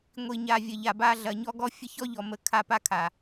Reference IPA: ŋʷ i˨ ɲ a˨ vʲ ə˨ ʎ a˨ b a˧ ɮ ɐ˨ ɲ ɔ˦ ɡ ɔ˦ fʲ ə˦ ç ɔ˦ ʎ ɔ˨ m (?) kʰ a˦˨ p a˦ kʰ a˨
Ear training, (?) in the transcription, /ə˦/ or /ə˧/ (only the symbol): ə˧